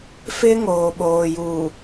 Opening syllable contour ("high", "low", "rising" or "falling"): high